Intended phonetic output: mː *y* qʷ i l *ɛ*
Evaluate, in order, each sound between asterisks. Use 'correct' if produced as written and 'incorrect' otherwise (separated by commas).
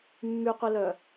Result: correct, incorrect